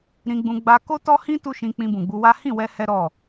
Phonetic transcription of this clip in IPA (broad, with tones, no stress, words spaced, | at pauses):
ɾĩ˧ɡ͡bũ˧ ɡ͡ba˧ko˦tɔ˦hĩ˦ tu˦ʃĩ˧ k͡pĩ˧bũ˨ɡ͡bu˧wa˦ hĩ˦˨wɛ˧ hɛ˦ɾɔ˦˨